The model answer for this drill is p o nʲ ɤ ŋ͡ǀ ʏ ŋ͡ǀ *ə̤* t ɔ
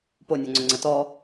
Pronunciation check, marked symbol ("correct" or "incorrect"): incorrect